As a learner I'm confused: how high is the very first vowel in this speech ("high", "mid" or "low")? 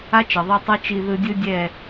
low